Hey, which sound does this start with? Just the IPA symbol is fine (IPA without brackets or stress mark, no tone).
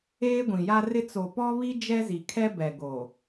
eː